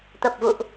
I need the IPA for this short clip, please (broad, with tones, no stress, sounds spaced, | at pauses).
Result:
t̪ ə˨˩ p̚ v ṵ˧˨ ʔ